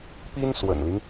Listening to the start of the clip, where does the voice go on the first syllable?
high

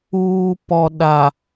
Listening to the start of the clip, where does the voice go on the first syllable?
low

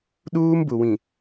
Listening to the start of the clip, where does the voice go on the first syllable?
high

